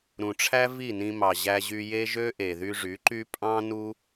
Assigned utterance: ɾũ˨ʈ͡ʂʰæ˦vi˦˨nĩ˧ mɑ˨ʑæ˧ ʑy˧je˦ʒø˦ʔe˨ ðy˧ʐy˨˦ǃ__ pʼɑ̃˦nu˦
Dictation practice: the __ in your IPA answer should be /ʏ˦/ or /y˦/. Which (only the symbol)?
y˦